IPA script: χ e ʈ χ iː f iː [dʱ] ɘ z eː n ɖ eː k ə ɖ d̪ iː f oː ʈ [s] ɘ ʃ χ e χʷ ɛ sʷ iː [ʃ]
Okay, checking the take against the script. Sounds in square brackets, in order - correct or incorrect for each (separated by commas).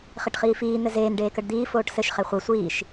incorrect, correct, correct